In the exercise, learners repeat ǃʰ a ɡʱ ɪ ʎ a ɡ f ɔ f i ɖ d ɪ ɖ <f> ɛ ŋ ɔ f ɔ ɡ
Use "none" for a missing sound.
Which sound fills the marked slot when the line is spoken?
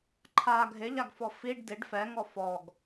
f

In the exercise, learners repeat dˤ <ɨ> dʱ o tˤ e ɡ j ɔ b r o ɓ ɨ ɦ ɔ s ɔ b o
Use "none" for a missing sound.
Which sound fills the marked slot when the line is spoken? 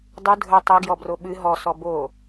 ɨ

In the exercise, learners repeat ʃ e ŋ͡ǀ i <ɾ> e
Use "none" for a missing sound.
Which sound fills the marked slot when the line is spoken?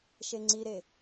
ɾ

